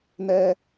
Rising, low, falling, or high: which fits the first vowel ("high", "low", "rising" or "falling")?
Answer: high